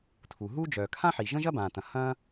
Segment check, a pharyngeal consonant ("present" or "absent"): present